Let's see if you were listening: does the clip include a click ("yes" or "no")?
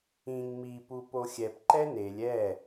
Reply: yes